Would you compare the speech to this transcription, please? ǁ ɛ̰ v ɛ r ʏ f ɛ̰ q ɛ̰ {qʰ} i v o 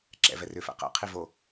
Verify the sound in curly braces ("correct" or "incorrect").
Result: correct